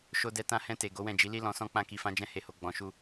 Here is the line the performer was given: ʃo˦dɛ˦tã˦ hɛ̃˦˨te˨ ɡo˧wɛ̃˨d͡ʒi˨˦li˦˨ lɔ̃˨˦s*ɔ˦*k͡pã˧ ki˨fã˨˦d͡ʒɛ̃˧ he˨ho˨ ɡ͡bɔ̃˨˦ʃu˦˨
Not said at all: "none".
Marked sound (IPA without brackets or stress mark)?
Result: ɔ̃˦